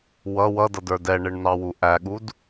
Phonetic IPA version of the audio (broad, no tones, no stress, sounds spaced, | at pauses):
w ʌ w ʌ d ʌ d ə˞ d ɛ ɳ ɪ ɳ n ɑ w u ʔ æ ɠ u d